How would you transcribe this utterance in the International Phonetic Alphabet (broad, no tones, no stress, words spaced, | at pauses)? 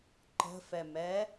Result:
ǃə̤fɛmɛ